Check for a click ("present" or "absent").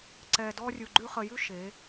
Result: present